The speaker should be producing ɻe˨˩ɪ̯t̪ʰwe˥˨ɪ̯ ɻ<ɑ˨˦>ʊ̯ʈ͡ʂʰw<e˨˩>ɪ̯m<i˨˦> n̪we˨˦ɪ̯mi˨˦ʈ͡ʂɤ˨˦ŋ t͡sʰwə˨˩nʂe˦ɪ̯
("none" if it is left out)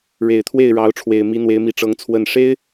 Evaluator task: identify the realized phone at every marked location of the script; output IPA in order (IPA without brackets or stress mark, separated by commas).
ɑ˨˦, e˨˩, i˨˦